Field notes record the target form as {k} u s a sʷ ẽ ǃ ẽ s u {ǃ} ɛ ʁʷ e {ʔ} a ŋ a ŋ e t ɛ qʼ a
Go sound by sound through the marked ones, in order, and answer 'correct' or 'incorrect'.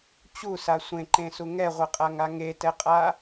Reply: incorrect, incorrect, incorrect

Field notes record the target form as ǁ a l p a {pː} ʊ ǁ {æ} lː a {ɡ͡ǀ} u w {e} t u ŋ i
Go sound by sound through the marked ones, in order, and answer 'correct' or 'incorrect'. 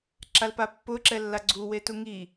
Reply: correct, incorrect, correct, correct

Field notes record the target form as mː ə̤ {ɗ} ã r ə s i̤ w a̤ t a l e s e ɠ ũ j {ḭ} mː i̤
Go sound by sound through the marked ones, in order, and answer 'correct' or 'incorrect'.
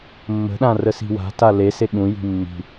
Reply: correct, incorrect

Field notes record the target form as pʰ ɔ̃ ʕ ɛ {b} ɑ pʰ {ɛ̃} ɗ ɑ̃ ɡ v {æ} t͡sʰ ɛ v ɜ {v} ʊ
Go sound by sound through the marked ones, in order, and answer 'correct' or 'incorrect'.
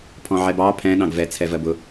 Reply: correct, correct, incorrect, incorrect

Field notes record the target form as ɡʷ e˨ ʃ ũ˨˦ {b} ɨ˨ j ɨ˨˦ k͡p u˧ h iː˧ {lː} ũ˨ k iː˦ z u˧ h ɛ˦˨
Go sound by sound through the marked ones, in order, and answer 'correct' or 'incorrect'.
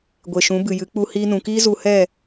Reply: correct, incorrect

